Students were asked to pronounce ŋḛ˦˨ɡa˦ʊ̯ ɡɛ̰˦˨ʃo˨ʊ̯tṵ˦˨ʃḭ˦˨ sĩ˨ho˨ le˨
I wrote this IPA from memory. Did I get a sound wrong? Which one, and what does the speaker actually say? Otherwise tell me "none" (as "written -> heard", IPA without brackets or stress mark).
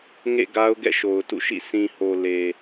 none